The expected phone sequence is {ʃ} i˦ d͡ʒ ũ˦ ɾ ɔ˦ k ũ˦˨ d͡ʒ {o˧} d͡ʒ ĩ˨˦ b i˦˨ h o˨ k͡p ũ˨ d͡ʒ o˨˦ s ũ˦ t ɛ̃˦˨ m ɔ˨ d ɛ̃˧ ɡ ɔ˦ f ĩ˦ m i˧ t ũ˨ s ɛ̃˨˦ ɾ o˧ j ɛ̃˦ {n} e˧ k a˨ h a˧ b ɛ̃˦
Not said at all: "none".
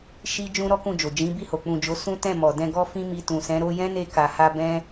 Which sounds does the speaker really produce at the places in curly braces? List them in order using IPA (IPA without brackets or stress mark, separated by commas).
ʃ, o˨, n